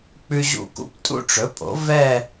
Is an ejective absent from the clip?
no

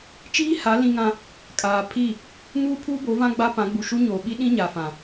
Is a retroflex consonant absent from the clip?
yes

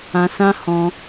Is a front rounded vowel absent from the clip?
yes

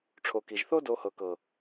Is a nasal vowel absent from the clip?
yes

